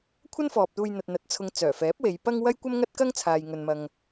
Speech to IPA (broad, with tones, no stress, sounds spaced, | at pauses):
kʷʰ ɐ˥ n f ɔː˨ p̚ t̪ uː˧ j n̪ ɐ˨ t̚ n̪ ɐ˨ t̚ t͡sʰ ʊ˨ ŋ t͡s œː˨˩ f ɛː˨˥ p̚ w e˨˧ j p ɐ˥ ŋ w ɐ˥ j kʷ ɐ˥ m ŋ ɐ˥ t̚ k ɐ˥ ŋ t͡sʰ aː˨ j ŋ ɵ˨ n m ɐ˨ ŋ